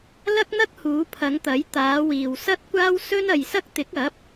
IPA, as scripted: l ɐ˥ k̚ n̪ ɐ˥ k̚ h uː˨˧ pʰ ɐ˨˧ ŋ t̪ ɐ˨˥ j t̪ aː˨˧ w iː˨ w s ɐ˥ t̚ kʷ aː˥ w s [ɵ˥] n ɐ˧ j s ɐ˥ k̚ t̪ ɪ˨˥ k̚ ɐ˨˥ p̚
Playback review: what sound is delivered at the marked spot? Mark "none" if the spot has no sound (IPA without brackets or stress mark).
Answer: ɵ˥